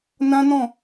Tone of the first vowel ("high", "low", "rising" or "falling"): high